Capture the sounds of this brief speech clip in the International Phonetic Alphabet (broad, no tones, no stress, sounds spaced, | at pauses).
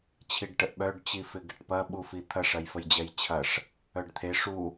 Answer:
t͡ɕʰ i ɖ ʈ ə ʔ ɓ œ ɖ t͡ɕ i f ɪ ɡ ɪ ʈ p ɐ ɓ u f i t̪ʰ ɐ ʂ ɐ j f ə j d͡ʑ ɛ j t͡ɕʰ ɐ ʂ | œ ɖ t̪ʰ e ʂ u